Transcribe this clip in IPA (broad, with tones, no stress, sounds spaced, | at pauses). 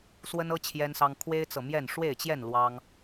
s w ə˦ n ɤ˦ t͡ɕʰ j ɛ˦ n s ɑ˦ ŋ kʰ w e˦ ɪ̯ t͡s ɤ˨ m j ɛ˥˨ n ʂ w e˥˨ ɪ̯ t͡ɕ j ɛ˥˨ n l w ɑ˦ ŋ